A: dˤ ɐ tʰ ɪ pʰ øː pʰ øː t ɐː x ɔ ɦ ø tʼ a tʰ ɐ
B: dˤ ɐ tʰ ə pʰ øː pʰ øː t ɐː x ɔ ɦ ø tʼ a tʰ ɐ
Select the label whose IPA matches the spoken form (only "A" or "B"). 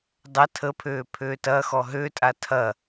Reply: B